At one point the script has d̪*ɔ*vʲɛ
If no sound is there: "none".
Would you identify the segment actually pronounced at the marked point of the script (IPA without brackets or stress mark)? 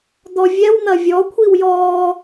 ɔ